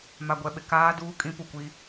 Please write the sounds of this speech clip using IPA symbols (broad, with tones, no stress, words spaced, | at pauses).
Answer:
ma˨ɡʷɛ˨ɓɪ˨ kaː˦duː˦ kʼĩ˦pu˨kʷi˦